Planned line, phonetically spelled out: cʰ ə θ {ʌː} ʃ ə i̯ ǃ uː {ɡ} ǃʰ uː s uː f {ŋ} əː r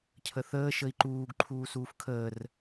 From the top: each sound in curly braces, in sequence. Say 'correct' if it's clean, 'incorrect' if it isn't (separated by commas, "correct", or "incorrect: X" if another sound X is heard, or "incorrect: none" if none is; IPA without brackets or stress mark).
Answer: incorrect: əː, correct, incorrect: kʰ